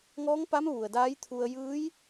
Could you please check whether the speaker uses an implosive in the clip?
no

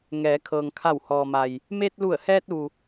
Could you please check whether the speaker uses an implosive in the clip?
no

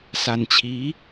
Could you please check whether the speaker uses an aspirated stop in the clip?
yes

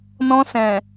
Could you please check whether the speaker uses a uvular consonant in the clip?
no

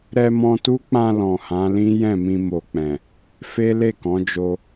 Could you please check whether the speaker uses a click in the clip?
no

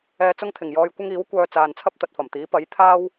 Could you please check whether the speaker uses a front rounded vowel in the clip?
yes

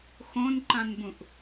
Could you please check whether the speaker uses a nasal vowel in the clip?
yes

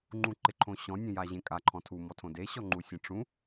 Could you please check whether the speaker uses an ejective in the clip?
yes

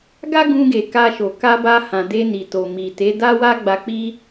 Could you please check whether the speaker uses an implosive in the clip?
no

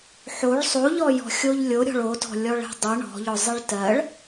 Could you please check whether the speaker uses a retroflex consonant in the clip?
yes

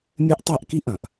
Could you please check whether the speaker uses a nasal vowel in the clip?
yes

